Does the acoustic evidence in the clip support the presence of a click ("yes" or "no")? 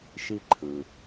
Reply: yes